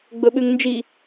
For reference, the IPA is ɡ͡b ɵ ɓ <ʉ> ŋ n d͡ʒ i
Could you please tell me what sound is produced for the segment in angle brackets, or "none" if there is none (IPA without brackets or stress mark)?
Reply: ʉ